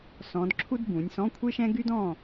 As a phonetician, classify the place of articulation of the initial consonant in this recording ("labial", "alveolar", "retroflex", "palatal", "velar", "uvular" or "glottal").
alveolar